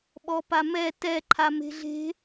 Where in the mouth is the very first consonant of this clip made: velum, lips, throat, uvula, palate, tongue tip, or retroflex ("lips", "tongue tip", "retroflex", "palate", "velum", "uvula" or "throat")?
lips